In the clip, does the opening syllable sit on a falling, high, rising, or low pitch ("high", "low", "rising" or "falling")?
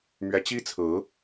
rising